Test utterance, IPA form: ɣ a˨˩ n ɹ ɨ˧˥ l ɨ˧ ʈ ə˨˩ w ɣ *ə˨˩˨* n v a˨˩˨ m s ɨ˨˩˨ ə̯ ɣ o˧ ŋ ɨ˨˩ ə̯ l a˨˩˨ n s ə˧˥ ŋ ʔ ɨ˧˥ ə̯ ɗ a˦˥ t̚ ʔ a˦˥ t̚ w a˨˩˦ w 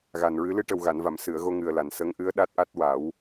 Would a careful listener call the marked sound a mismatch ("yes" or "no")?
yes